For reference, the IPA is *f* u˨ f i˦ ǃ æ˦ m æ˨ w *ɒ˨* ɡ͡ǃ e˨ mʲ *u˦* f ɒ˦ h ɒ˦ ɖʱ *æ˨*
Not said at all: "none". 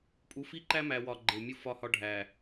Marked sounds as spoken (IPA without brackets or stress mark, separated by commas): pʼ, ɒ˨, u˦, æ˨